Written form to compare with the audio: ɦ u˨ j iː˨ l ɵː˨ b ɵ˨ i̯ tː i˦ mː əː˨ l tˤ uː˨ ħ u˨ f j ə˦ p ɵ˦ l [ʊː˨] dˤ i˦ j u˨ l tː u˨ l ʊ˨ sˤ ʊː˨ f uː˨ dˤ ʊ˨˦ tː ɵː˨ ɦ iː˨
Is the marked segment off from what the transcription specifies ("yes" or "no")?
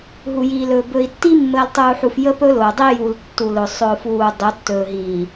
no